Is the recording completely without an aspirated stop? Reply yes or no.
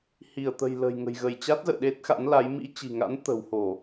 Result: yes